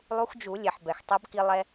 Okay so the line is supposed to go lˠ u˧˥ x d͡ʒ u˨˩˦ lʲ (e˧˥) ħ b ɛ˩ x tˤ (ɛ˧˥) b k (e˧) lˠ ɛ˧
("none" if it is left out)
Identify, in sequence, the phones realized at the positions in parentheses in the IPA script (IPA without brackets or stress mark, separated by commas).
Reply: e˩, ɛ˧˥, i˧